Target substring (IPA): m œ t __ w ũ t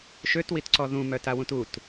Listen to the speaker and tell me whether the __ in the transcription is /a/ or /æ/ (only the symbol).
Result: a